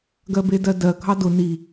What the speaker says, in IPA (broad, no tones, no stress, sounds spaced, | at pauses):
ɡ ɜ b e d ɜ d ɜ ɡʱ ɑ d ʊ n i